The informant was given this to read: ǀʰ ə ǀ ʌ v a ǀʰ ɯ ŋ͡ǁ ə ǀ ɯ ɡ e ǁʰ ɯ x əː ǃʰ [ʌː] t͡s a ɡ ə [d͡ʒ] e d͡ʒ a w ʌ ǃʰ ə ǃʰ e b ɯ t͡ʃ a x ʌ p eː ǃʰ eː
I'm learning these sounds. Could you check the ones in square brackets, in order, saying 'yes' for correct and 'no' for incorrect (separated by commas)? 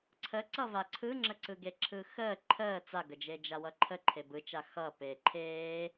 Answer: no, yes